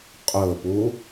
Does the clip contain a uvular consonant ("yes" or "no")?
yes